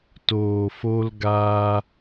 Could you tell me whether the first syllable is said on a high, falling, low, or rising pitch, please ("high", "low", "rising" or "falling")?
low